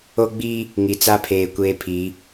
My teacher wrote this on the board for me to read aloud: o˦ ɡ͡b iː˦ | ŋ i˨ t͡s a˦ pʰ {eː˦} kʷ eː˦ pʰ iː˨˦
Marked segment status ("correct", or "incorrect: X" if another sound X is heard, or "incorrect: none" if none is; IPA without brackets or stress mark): incorrect: eː˨